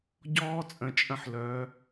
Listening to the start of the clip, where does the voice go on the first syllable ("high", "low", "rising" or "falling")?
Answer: high